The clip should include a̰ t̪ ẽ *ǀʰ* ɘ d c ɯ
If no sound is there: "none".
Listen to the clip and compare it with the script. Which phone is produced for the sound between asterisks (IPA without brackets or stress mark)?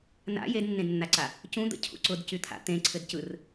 ǀʰ